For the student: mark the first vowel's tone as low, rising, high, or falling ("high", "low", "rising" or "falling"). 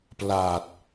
low